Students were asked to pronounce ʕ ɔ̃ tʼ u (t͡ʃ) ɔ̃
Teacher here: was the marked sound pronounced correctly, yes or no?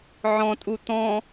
no